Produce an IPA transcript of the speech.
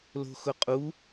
l o̤ x ʊ qʼ u

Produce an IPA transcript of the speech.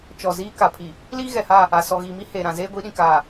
t͡ʃ ɔ˨ z iː˦ k a˨ pʰ i˨ | l iː˦ ɣ ɛ˨ h a˦˨ | a˨ s ɔ˨ ɣ iː˨ m i˦ h eː˨ ɾ ã˨ z eː˦ ɡʷ i˨˦ ɗ ĩ˨ k aː˨

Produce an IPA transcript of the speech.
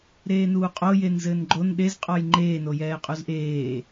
ɾ eː n uː qʼ o j e n z ɘː n ɡ͡ǃ o n ɗ e z qʼ ɔ j ŋ͡ǃ eː n o j ɛː qʼ u z ʔ eː

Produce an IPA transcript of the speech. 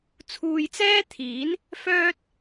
t͡sʰ uː˨ j t͡s ɛː˥ t̪ʰ iː˨˥ n | f œː˥ t̚

